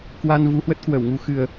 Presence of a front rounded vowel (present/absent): absent